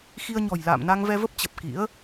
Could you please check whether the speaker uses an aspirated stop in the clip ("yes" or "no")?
no